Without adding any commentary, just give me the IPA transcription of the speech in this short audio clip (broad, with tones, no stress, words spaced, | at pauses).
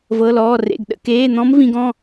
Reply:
vɤ˧˥˧lɔː˧˥˧rḛ˧˥˧ɡ ɗə̰˧˥˧keː˧˥˧n̪ɔ̃˦˥m vĩ˦˥ɡɔ̃˧˥˧